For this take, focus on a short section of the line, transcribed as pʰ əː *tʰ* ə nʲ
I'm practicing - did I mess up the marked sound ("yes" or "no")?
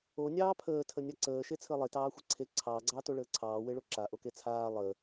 no